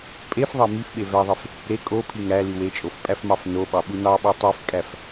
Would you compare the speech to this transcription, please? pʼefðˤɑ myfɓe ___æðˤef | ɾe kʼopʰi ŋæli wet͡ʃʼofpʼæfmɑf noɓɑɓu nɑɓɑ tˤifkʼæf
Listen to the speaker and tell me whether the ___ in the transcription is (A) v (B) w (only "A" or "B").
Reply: A